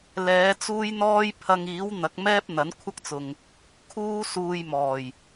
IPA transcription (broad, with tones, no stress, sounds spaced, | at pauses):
l ɛː˨˧ t͡s uː˥ j n̪ ɔː˥ j pʰ ɐ˧ ŋ iː˨˥ w n̪ ɐ˨˥ k̚ m ɛː˥ p̚ n̪ ɐ˨˥ n kʷʰ ɐ˥ k̚ t͡s ʊ˨ ŋ | kʰ uː˥ s uː˧ j m ɔː˨˩ j